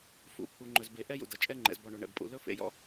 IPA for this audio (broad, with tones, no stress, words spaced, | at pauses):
fṵ˨˦pʰu˨ ŋ͡ǃɵ˨zbe˨ ʔɛ˦jṵ˨dʌ˨ t͡ʃʼɛ˦ŋ͡ǃɛ̰˨zbɔ˨ɳo˨ ɳɛ̰˨bpʼṵ˨ lɵ˦ fḛ˨jɔ̰˦